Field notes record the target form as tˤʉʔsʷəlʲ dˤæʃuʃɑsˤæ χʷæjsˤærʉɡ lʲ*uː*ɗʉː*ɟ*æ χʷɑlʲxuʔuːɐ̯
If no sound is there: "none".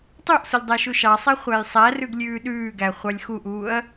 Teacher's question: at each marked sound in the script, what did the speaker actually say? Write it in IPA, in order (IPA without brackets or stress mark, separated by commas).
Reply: ʉː, ɡ